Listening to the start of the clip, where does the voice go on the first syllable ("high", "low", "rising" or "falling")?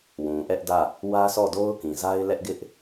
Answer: low